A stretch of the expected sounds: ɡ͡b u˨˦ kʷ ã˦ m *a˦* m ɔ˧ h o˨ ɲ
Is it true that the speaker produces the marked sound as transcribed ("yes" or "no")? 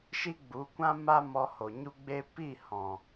yes